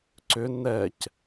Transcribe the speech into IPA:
ǀ ʏ n ɛ c

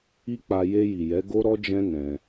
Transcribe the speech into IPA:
i˦ k͡p a˧ j e˧ j i˨ j ɛ˨˦ ɡ o˦ ɾ ɔ˦ d͡ʒ ɛ̃˦ n ɛ̃˧

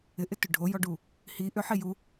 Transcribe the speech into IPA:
ɪ ʔ ɪ t ʏ ɖʱ o j ɔ ɖ u | h i ʔ ʏ ħ i j u

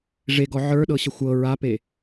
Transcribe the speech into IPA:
ʐ e ɡ ɔ ʕ ə˞ ɗ ɤ ɕ ə xʷ ɤ ɹ a p e

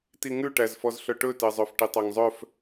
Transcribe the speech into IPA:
t i ŋ ʉ ʈ æ z f ɔ z ɬ œ ʈ ɵ t ɛ zˤ œ f ʈ i tˤ æ ŋ zˤ œ f

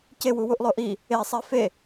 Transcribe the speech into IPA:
c e w u w u ʔ lˠ o ʔ i | e sˤ i f e

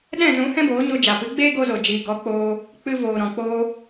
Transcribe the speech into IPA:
ɗ ɛ̃˦˨ z ũ˨˦ h ɛ̃˦ b oː˨˦ ɲ o˧ d͡ʒ a˨ p ɨ˨˦ ɡ͡b eː˦ ɡ o˧ z o˨ d͡ʒ iː˨ ɡ ɔ˨˦ k͡p oː˧ | k͡p ɨ˧ v oː˨ ɾ ɔ̃˨ k͡p oː˧

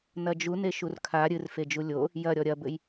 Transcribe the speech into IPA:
n ɐ d͡ʒ u n e ʃ u r kʰ a ɾʲ ɨ r f e d͡ʒ u lʲ o | j ɐ ɾʲ ɔ ɾʲ ɐ b ɘ j

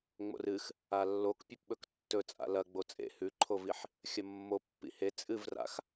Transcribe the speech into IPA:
ŋ͡m o̰ r ɨ x | a lː o k pʲ ɐ p ɓ ɵ k tː ɵ t͡sʼ a̰ l ɐ ɡ͡b o t͡sʼ ḛ h ʉ ǃʰ o v i ħ | xʲ ɐ mː o pː ḭ h e t͡sʼ ɨ v r a̰ x

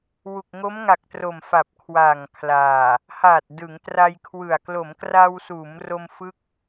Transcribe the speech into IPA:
w u˨˩ k̚ ŋ o˦˥ m ŋ a˨˩ k̚ t r o˨˩ m f a˨˩ p̚ kʰ w a˨˩ ŋ kʰ l aː˨˩ | h aː˨˩ t̚ d ɯ˩˦ ŋ t r a˧ j kʰ w ɯ˨˩ a̯ k l o˩˦ m k r a˧ w s uː˩˦ m r o˧ m f ɯ˥˩ k̚

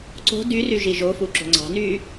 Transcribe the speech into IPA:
ǀ o̤ d y r y ʒ i ʒ o f u ǁ o̤ ŋ͡ǀ ɑ̤ n yː

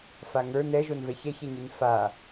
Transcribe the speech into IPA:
f a ŋ ə˞ n ɛ ʒ o n v ɛ ç ɛ ç ɛ ɲ i n f a

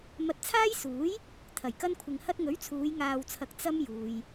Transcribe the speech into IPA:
m ɐ˧ t̚ t͡sʰ aː˥ j s uː˨˥ j | t̪ʰ ɐ˨˩ j k ɐ˥ n kʷʰ ɪ˧ ŋ h ɐ˥ t̚ ŋ ɵ˨˥ ɥ t͡sʰ uː˨˧ j ŋ aː˧ w t͡sʰ ɐ˧ k̚ t͡s ɐ˥ m j uː˨ j

